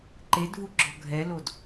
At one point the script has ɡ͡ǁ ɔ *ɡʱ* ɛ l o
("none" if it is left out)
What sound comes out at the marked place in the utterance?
ɡʱ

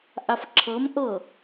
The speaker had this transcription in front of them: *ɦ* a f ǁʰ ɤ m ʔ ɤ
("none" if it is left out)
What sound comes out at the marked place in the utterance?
ʔ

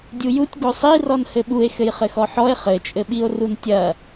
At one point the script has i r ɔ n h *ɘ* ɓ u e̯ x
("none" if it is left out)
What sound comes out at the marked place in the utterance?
ɘ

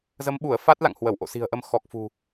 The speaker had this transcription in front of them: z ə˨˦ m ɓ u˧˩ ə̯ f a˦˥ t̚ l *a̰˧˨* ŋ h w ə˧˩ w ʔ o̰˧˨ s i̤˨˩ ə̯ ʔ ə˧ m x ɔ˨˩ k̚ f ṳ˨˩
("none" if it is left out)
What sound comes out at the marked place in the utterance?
a̰˧˨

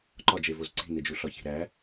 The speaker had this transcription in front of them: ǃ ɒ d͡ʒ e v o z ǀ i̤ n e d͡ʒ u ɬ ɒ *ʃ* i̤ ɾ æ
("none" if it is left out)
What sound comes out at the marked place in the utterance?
ç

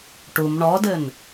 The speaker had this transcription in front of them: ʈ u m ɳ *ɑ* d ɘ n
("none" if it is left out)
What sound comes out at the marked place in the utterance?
ɔ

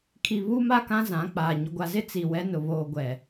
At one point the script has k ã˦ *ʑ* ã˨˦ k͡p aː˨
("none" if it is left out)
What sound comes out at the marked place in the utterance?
z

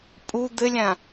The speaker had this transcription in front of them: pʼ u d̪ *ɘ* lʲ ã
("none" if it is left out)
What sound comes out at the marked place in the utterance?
ɘ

